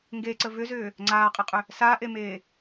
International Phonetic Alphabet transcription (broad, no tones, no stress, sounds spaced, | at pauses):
ŋ ɡ e ǀ ə v ʏ z ʏː | ŋ͡ǀ aː qʼ ɪ qʼ ʏ | s a ʔ e m eː